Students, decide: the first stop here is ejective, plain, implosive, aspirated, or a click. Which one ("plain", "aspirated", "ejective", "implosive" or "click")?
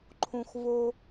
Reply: click